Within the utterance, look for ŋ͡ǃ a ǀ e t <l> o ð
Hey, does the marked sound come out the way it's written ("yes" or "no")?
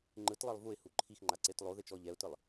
no